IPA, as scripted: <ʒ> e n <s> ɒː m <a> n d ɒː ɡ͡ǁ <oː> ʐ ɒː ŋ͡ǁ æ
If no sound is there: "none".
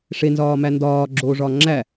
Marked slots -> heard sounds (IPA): ʂ, z, æ, oː

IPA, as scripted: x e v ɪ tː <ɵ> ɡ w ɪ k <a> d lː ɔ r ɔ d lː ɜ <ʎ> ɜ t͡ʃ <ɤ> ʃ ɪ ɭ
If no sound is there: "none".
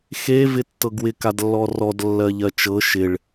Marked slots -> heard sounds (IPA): ɤ, a, ʎ, ɤ

